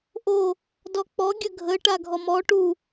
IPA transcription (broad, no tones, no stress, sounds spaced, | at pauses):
ʔ o | d ɔ k͡p ɔ ɡʲ ə ɡʱ ə ʈ a ɡʱ ɔ m ɔ ʈ u